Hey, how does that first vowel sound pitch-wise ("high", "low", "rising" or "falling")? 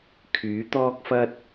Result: rising